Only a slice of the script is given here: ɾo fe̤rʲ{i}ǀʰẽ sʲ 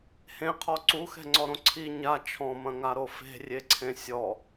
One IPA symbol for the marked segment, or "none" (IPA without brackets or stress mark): e